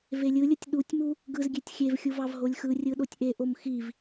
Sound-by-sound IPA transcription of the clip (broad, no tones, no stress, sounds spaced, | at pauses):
v e lʲ ɯ lʲ ɯ tʲ ɗ u tʲ m u | ɡ ɯ z ɡʲ e tʲ xʲ e v xʲ u v ɑ v ɦ o lʲ x ɯ rʲ ɯ ɗ o tʲ ʔ e ʔ o m x i v